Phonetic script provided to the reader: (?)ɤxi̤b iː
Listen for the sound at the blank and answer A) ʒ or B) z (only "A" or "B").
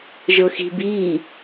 A